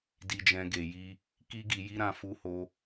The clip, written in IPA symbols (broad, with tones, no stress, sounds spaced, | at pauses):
d i˨ d͡ʒ ɛ̃˨ ɡ e˨ j i˧ | k i˧ ɡ i˨ j i˧ ɾ ã˧ f u˧ h o˧